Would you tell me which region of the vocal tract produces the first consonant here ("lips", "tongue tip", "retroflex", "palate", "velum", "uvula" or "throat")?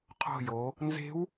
uvula